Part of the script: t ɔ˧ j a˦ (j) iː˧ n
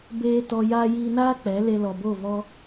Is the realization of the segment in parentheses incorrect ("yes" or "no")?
no